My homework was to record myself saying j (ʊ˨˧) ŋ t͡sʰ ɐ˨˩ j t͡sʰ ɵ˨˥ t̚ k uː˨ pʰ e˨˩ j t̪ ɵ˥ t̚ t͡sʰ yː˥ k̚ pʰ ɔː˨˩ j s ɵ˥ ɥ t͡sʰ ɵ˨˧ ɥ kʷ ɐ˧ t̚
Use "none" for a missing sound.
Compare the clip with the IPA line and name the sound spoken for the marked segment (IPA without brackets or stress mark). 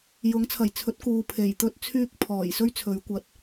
ʊ˨˥